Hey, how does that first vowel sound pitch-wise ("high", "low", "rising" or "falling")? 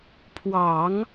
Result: low